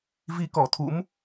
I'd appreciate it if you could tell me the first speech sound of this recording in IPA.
v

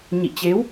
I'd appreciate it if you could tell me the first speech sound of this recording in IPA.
ɲ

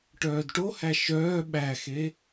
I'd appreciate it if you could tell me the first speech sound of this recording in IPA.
ʈ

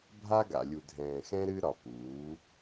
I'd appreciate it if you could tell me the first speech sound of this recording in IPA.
bʱ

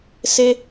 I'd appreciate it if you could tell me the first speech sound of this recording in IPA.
s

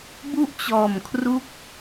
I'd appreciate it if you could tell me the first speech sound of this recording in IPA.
b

